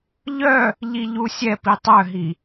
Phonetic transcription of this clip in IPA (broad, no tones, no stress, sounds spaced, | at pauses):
ʎ œ | ʎ i ʎ u sʲ ɛ p i tˤ œ ɦ i